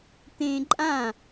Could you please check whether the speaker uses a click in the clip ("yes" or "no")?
yes